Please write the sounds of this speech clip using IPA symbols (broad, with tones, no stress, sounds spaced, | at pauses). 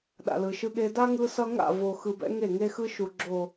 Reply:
ɗ a̰˨ l ɯ˨ ʃ ɯ˦ ɠ e˦ d a˦ ŋ ɯ˦ s ʌ˦ ŋ a̰˦˨ v o˨ x ɯ˨ b ɛ̰˦ ŋ e˦˨ ŋ e˦ x ɯ˦ ʃ u˨ ɡ͡ǁ o˨